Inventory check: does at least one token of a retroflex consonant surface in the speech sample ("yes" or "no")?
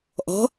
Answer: no